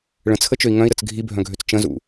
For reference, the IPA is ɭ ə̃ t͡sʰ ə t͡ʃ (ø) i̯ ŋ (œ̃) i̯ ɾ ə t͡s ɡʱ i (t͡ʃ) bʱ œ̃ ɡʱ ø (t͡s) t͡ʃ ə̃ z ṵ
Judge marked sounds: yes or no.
yes, yes, no, yes

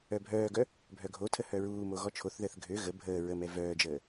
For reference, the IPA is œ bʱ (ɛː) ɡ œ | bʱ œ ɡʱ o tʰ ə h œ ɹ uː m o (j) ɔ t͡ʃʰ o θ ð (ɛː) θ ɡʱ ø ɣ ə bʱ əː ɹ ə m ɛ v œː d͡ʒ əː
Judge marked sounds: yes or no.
no, no, no

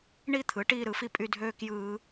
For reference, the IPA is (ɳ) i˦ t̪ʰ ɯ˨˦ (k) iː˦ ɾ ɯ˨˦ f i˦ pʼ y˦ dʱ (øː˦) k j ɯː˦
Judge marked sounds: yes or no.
yes, no, yes

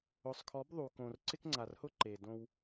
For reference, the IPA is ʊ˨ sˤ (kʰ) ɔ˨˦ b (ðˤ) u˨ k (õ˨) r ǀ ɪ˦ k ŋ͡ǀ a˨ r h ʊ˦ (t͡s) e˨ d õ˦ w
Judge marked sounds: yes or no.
yes, yes, yes, no

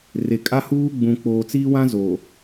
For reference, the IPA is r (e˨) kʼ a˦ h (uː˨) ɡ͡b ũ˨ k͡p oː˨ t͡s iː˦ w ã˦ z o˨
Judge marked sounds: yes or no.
yes, no

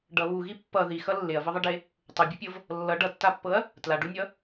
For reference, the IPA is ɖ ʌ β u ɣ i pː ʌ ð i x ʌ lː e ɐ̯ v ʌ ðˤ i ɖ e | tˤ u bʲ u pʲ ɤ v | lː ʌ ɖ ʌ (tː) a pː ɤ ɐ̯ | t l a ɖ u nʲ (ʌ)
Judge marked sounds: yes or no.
yes, yes

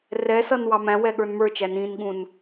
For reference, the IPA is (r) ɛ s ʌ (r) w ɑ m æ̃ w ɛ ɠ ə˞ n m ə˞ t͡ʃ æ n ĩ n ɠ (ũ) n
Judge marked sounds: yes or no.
yes, no, yes

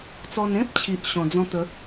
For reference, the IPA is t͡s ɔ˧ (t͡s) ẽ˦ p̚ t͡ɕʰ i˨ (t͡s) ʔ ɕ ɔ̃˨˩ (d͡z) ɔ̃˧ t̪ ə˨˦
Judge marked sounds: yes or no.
no, no, yes

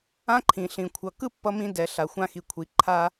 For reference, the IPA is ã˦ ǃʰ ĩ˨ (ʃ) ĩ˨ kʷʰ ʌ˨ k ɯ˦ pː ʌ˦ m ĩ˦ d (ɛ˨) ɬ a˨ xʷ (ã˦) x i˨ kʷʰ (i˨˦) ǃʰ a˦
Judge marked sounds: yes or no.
no, yes, yes, yes

